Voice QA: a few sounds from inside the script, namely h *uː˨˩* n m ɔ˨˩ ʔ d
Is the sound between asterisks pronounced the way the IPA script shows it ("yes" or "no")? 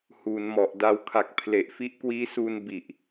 no